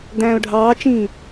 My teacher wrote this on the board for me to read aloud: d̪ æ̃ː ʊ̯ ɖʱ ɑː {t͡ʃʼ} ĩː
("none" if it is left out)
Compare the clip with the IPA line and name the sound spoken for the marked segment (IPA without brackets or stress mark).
t͡ʃ